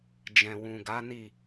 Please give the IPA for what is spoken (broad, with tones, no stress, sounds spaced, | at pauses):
d͡ʒ ɛ̃˨ w ũ˨ ɡ a˨˦ n i˦˨